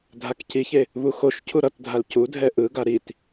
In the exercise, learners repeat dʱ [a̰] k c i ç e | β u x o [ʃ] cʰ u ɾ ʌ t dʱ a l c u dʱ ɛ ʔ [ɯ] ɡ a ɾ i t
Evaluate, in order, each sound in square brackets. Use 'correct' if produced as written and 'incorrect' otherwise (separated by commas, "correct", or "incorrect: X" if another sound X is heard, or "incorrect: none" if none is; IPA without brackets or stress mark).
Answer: incorrect: a, correct, correct